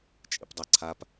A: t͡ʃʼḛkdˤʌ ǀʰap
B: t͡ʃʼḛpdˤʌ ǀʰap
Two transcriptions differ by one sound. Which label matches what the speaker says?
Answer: B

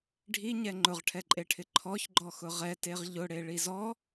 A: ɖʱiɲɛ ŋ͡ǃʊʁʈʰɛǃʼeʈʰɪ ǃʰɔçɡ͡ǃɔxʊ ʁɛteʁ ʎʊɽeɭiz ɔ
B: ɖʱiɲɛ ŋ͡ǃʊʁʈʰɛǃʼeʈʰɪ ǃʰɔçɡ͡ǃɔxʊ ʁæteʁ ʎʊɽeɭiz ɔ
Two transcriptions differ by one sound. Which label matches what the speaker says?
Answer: A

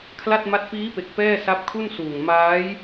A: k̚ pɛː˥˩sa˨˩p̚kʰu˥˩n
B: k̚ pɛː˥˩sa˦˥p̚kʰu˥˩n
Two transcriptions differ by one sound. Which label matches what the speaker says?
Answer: B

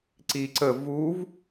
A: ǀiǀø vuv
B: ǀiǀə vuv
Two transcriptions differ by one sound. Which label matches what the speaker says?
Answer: B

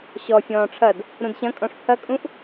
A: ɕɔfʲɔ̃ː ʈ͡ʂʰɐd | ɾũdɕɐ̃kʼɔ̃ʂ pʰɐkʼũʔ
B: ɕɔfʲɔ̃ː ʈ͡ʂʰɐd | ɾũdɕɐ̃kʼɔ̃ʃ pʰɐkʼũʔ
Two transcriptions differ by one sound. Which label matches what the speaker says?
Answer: A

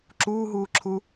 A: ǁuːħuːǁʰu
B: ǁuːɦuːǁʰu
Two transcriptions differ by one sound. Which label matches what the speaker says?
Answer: B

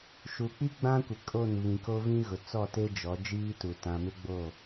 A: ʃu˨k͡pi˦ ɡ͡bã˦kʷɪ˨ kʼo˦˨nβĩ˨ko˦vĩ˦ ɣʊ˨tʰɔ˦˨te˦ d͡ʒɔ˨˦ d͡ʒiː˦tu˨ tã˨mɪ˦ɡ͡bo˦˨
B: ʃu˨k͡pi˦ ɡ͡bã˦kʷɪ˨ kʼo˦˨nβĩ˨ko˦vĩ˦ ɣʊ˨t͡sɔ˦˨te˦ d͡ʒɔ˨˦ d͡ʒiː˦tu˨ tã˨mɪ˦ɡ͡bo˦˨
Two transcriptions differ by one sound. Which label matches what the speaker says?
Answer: B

